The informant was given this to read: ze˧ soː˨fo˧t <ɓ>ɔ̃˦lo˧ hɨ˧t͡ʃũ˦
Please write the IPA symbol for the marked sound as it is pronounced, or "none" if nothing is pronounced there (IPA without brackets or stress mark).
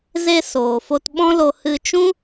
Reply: ɓ